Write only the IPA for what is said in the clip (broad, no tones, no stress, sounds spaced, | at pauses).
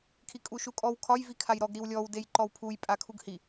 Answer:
kʰ i kʼ u ʃ u kʼ ɔ w kʰ ɒ j v i kʰ a j ɾ ɔ ɡ ɾ i w lʲ ɔ w d e j ǃ ɔ w pʰ u j pʼ a kʰ u ɡ h i